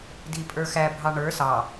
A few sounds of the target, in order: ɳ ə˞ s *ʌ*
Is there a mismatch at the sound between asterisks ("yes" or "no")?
yes